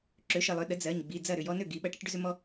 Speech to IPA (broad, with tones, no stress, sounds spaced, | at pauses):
ǁ ø˩˥ ʃ ə˩˧˩ lˠ ø˩˧ ɗ ə˩˥ d͡z ɜ˩˧˩ ɲ ɡ͡b i˩˧˩ d͡z ɐ˥˩ ɾ ʏ˥˩ j ɔ˦ n ø˥˩ ɡ i˩˧ ɓ ɐ˩˥ ʈ ɐ˦ ʈ ɖ ʏ˦ z ʏ˦ m ɔ˦